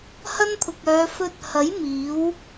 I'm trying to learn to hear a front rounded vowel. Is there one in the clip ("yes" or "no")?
yes